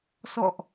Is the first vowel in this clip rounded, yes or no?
yes